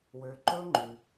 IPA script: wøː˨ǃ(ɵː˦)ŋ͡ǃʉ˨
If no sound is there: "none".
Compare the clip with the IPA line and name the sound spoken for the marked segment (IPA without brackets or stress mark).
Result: ɵː˦